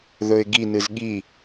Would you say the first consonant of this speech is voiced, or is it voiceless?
voiced